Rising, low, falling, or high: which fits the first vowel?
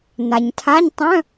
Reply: low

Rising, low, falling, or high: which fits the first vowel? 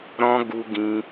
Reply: high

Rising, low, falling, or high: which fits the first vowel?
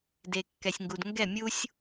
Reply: low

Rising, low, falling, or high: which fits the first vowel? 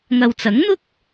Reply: low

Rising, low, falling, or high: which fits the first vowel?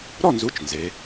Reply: falling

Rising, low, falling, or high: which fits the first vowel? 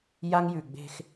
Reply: high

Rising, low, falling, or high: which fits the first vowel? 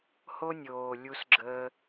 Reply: high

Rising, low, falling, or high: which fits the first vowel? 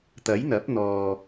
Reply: rising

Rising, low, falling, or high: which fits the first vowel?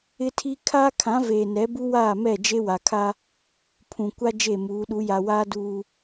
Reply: high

